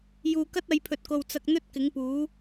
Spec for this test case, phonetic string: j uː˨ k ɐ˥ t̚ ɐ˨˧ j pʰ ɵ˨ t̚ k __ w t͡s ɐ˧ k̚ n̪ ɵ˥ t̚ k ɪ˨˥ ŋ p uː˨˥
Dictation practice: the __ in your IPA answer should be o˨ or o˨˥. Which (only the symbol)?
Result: o˨